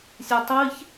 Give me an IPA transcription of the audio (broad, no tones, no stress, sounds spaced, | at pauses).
sʲ ɛ tˤ i ç